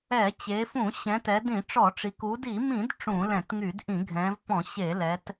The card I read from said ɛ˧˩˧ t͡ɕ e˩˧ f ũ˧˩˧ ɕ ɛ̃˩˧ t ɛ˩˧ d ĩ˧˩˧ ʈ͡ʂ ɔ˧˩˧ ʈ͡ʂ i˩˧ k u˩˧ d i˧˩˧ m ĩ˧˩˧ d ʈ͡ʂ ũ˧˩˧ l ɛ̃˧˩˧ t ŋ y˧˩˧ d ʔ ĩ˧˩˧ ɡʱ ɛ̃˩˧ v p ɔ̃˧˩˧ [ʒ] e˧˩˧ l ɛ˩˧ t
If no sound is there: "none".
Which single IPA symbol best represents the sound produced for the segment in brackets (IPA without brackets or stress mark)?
ɕ